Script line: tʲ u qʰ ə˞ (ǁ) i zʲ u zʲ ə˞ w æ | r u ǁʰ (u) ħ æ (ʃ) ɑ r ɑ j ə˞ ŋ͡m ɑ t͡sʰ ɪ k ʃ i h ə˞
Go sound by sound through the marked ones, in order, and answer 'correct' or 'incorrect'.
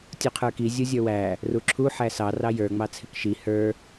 incorrect, correct, incorrect

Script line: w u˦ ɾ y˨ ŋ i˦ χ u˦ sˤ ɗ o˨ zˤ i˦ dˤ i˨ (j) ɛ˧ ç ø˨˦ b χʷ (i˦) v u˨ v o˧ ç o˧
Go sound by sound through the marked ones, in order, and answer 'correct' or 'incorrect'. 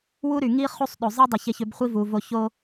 incorrect, correct

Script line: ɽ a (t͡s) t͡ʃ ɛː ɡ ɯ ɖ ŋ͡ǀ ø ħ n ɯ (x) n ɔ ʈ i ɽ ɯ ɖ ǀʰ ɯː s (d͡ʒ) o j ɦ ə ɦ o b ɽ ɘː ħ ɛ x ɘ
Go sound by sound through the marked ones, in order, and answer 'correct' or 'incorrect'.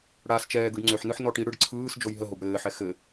incorrect, incorrect, correct

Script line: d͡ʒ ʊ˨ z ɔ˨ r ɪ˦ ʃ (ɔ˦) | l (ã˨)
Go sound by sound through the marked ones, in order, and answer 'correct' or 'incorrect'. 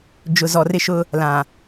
incorrect, correct

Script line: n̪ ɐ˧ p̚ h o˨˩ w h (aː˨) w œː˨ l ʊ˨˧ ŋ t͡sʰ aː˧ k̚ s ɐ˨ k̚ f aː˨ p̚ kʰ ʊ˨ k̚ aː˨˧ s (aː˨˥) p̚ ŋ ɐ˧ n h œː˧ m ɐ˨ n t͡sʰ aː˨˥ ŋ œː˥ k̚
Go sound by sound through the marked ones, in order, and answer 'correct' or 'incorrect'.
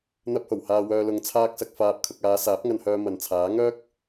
correct, correct

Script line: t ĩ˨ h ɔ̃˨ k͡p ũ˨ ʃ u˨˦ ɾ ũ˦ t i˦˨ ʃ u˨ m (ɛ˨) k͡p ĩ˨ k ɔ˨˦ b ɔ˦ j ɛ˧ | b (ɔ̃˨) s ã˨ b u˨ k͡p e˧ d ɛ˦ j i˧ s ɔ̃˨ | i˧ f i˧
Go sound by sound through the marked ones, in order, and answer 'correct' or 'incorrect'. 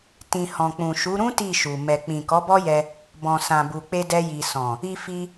correct, correct

